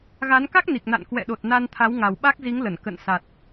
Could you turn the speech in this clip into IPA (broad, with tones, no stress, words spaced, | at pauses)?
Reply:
ɣa˨˦n ka˦˥k̚ni˨˩k̚na̰˧˨n kwɛ̰˧˨ɗo˨˩t̚na˧n t̪ʰa˨˦wŋa˨˩wɓa˦˥k̚zi˨˦ŋ lə˧˩n kə̰˧˨nsa˨˩t̚